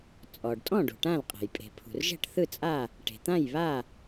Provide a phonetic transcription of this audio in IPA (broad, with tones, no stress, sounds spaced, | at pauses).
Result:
t͡sʼ ɔ˩ ɖ tʼ ɔ̃˥˨ ɖ ṳ˩ ʈ ã˥˨ l qʼ ɛ̤˩ j pʼ e̤˩ pʰ ṳ˩ r ʒ ɛ̤˥˨ ʈ θ ɯ˥˨ t͡sʼ a˥˨ | ʈ e̤˩ t̪ ã˥˨ j β a˥˨